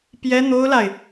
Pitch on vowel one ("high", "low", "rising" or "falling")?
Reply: high